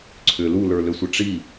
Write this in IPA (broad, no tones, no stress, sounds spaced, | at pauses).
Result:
ǀʰ ʏ l u l ə˞ l ʏ sʷ ə ʈ͡ʂ i